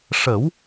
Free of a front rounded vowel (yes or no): yes